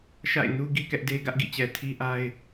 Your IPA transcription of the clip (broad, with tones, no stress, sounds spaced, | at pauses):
ʃ a̰˦˨ ɪ̯ n u˦ ɡ i˦ k ɛ˦ ʔ d e˦ ɡ ä˦ ʔ ɡ ḭ˦˨ t͡ɕ ɛ˨ tʰ i˦ ʔ a˦ ɪ̯